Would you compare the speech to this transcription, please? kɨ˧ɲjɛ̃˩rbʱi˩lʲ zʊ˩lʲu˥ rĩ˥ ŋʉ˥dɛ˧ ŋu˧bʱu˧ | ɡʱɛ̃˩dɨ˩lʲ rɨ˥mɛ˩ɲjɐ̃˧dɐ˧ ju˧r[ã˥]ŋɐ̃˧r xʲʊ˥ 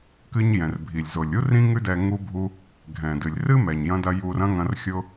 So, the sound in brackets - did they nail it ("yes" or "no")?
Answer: no